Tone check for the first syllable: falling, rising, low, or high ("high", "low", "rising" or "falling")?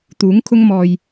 rising